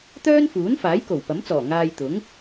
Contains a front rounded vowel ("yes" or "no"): yes